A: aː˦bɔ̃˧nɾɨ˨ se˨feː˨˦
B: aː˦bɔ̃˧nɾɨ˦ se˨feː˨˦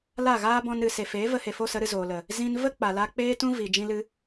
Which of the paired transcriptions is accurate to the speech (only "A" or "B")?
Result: A